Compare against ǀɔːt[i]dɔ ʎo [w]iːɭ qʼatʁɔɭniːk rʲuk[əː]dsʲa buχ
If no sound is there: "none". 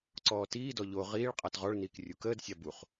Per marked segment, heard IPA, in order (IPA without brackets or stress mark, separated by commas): iː, ʁ, əː